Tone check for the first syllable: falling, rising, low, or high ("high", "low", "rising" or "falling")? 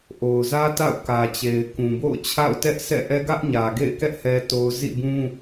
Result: low